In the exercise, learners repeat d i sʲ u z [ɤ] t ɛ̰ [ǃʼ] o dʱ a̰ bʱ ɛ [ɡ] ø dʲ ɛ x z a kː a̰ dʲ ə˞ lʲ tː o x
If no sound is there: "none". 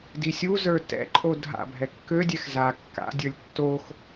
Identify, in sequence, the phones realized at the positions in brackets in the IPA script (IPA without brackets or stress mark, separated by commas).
ə˞, ǃʼ, kː